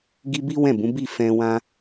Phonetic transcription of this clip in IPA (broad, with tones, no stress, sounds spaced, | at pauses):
ɡ i˧ b i˦ w ɛ̃˦˨ b ũ˨˦ b i˦˨ f ɛ̃˧ w ã˦